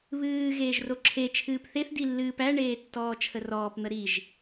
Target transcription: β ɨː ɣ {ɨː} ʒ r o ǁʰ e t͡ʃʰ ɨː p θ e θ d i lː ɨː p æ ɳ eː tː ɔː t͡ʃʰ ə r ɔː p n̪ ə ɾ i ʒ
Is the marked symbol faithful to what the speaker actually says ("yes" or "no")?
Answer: no